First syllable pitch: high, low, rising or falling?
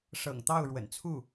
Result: low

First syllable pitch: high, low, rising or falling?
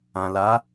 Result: low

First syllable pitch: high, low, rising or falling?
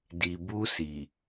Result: low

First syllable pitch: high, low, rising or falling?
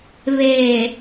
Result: low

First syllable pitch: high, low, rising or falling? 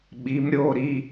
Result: rising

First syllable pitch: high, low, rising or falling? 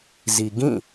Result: low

